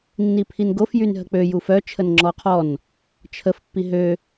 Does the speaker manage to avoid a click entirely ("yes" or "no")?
no